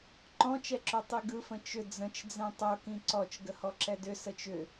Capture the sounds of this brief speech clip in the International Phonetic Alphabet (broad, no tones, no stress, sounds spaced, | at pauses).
ǃ ɔ̃ t͡ʃ ɛ ǁ o tˤ i ɡ ɯ f ə̃ t͡ʃ ʏ d͡z ə̃ t͡ʃ d͡z ɛ̃ tˤ o k ĩ ǀ ɔ t͡ʃ ɡ ə h ɔ ǁ ɛ d ʏ s ə t͡ʃ ʏ